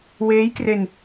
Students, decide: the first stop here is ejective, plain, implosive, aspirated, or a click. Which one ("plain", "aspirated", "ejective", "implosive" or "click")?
plain